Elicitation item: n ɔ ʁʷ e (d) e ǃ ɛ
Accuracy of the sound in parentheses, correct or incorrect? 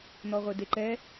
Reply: correct